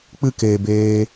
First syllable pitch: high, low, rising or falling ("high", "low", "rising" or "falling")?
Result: high